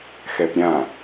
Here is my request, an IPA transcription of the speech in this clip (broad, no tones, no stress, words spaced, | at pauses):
xɛpɾʲã